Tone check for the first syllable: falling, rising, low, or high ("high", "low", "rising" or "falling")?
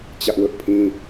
high